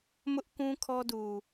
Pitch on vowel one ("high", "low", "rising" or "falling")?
high